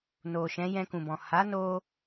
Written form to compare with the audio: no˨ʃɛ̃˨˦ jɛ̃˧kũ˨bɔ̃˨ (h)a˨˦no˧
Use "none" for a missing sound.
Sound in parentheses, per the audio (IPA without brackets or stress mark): h